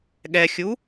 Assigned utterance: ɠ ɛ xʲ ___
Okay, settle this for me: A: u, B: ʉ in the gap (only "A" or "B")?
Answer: A